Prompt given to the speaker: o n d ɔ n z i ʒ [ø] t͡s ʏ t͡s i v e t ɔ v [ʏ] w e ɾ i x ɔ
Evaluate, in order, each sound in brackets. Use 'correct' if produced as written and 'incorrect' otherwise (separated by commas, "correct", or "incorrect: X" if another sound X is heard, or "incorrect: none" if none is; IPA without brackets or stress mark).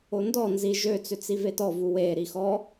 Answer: correct, incorrect: u